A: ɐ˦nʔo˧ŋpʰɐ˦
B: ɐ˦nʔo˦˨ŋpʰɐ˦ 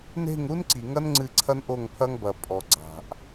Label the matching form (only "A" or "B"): B